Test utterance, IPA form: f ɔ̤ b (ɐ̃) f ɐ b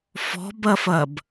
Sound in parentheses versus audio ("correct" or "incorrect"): incorrect